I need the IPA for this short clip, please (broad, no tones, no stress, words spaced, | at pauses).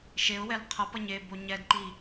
ʃeʊ̯wɛl qʰʌpʌɲ e boɲɛdǃi